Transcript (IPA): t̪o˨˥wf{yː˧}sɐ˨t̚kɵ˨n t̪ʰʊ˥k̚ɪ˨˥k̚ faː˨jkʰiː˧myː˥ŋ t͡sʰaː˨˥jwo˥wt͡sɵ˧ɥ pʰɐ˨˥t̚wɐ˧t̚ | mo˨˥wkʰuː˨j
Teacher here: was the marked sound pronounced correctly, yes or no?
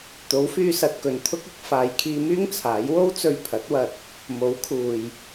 yes